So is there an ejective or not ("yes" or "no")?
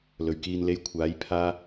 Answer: no